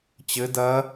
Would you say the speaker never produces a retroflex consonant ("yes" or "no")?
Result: yes